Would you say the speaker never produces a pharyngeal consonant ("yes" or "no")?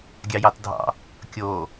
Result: yes